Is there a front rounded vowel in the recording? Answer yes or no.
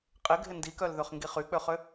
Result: yes